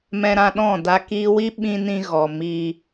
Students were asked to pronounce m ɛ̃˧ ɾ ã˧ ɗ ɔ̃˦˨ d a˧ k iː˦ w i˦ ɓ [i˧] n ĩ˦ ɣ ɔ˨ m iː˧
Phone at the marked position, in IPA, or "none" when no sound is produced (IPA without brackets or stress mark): ĩ˧